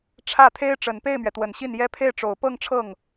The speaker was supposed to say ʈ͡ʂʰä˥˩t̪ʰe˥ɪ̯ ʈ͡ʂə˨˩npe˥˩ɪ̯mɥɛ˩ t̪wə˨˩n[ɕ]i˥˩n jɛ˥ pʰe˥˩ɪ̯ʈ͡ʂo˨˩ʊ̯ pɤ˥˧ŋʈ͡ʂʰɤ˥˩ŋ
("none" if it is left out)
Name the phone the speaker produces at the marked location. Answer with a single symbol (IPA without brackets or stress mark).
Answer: ɕ